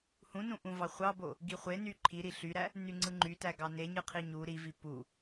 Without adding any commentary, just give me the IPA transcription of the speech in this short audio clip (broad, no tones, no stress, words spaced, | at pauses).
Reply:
hũnũʔũvɑ χʷɑbo | ɡiχʷeny ǃʰiɾi ɬyɾæ | nyŋ͡ǀɯŋ͡ǃytæ ɡɑneɲɯ qʰiɲu ɾivi pu